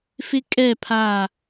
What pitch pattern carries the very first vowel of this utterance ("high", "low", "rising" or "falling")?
high